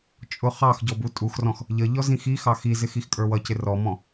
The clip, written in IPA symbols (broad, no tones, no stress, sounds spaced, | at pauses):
t͡ʃʼ ʊ χ ɑ x ɟ ɔ b u tʼ u x r ɔ̃ x | ʎ ə ʎ ɔ z ĩ x i x ɑ x i z ɪ x i x kʼ ə˞ w ʌ c ɪ r ɔ m ɔ̃